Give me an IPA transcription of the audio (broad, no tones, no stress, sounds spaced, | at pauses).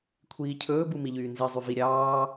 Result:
kʷʰ iː cʰ ɵː b u m i ʎ yː n z i zˤ y v i ɾʲ ɑː